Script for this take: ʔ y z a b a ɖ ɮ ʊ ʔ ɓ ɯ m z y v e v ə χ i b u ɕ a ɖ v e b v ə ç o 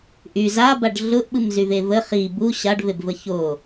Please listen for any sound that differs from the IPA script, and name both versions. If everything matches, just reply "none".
none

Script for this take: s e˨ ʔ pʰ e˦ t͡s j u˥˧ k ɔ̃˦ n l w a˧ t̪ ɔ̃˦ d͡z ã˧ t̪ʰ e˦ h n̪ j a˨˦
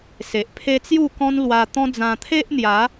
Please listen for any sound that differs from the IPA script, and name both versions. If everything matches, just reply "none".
h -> ʔ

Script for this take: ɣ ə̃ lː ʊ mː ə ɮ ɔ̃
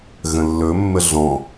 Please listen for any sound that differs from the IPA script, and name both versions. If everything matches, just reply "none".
ʊ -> ɵ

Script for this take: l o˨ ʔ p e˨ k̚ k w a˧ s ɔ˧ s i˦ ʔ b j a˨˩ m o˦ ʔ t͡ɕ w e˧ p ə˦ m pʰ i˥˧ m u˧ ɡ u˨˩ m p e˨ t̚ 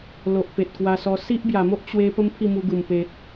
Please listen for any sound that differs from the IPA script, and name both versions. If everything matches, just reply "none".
k̚ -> t̚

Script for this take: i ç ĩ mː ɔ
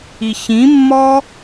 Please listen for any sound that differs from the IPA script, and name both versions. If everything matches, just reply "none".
none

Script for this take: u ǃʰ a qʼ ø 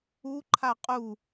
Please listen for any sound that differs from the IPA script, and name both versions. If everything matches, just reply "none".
ø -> u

